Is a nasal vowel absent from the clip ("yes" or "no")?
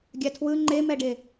yes